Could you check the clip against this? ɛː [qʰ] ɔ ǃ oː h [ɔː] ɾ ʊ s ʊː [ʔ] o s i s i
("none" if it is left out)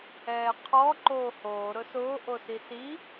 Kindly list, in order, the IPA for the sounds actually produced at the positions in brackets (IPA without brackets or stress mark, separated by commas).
qʰ, oː, ʔ